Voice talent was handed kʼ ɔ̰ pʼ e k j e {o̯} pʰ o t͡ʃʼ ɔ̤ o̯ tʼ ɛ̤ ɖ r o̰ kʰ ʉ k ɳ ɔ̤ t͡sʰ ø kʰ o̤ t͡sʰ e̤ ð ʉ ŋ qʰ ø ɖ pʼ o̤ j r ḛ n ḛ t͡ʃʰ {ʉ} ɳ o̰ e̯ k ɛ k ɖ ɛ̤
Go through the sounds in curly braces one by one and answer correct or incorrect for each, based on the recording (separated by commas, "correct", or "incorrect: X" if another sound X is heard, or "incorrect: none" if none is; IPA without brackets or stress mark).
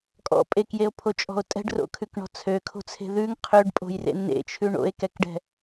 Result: correct, correct